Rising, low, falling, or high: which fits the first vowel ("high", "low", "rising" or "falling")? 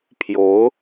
rising